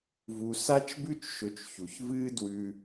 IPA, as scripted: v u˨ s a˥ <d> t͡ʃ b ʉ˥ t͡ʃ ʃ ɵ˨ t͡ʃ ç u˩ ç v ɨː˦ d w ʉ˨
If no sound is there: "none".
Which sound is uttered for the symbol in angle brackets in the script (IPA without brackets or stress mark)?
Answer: none